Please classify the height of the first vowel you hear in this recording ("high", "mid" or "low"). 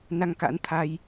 low